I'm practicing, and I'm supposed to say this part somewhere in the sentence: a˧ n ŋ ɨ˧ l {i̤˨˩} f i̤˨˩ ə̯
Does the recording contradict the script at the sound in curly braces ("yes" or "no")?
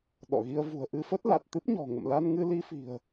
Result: yes